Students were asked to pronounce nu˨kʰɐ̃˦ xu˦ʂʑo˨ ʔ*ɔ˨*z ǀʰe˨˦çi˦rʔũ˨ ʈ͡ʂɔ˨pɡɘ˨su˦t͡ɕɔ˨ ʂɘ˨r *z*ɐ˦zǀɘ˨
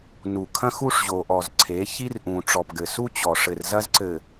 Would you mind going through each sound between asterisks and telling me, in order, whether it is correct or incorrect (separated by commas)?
correct, correct